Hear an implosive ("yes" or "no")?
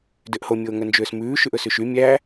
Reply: no